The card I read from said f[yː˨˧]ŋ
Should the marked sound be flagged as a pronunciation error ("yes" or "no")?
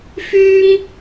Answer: yes